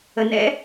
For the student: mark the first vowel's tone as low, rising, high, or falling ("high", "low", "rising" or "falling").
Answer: low